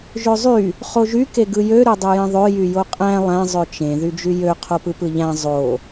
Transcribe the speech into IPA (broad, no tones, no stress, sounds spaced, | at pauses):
ʒ ø zˤ y | χ o ʒ y k e ɡ ɯ j ø ɾ ø dˤ u j ẽ ðˤ ø j y j o qʼ æ̃ lˠ æ̃ zˤ ø t͡ʃ ẽ ð y d͡ʒ y j ø qʰ o p ɯ p ɯ ʎ æ̃ zˤ o